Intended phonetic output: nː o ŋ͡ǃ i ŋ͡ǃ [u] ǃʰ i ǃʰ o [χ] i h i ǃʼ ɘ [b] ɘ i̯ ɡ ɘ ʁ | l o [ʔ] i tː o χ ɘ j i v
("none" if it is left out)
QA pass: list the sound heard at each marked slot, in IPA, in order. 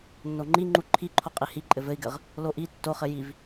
u, qʼ, v, ʔ

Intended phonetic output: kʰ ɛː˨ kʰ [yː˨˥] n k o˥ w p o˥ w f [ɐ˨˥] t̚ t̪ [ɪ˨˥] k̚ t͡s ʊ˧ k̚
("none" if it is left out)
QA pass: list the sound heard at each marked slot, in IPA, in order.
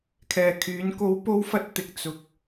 yː˨˥, ɐ˥, ɪ˧

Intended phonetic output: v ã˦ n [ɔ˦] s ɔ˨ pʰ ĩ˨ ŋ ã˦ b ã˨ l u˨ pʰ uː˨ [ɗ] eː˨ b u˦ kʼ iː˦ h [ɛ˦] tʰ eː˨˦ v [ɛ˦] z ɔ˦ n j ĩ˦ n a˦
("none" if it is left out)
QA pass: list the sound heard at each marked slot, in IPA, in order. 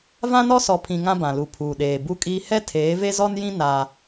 ɔ˦, ɗ, ɛ˦, e˦

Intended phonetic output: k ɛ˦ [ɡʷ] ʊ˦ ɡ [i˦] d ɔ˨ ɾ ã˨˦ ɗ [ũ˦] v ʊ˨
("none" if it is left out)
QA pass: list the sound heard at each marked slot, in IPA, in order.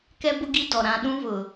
b, i˦, ũ˦

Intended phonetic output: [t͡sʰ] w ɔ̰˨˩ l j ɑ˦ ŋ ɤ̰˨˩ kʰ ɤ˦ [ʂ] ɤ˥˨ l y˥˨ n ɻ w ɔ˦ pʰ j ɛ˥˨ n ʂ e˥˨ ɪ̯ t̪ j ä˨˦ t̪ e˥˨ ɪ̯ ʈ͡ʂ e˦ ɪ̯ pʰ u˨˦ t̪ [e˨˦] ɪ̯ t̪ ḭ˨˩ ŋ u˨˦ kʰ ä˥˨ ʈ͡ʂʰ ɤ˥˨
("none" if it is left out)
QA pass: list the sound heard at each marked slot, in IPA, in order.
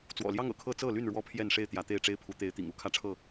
t͡s, t͡s, e˨˦

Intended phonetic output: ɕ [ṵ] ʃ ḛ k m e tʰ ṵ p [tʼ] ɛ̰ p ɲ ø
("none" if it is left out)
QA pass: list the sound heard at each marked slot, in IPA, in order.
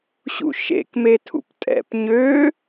ṵ, tʼ

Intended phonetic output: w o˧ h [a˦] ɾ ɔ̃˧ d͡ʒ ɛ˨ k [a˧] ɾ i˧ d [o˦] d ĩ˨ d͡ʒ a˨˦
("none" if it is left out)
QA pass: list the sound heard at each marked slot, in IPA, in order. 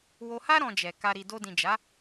a˦, a˧, o˧

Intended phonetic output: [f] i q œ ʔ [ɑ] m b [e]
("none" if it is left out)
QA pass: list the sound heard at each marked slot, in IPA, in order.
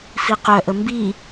f, ə, i

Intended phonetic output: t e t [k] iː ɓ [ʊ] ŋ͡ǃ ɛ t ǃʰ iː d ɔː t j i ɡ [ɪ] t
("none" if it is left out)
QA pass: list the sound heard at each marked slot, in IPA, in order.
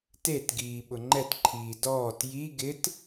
ɡ, ʊ, ɪ

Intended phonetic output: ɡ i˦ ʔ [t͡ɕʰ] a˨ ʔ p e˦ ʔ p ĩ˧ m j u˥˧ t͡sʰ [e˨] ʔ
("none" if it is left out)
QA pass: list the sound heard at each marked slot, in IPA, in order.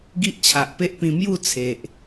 t͡ɕʰ, e˨

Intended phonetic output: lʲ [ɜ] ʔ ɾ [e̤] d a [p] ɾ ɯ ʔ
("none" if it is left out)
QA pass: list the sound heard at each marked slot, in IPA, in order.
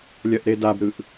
ɜ, e, b

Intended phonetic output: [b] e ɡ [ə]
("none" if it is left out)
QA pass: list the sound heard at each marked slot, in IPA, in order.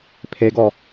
pʰ, ɔ

